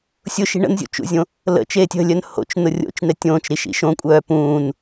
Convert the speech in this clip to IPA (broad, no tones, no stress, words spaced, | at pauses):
sʲʊʃi̤ ɳə̰nzʲṵt͡ʃṵzʲõ | lə̰t͡ʃeːtʲ ə̤lʲœn ho̰t͡ʃnʊ rʲo̰t͡ʃn̪ɛtʲ õːt͡ʃɾiʃḭ ʃõkʷʼœː pũːn